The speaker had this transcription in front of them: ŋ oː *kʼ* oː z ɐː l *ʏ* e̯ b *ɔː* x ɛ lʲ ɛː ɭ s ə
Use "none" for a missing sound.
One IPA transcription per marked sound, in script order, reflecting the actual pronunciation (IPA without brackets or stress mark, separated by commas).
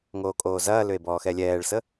kʼ, ʏ, ɔː